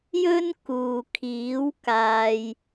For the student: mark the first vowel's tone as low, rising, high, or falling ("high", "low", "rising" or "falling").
high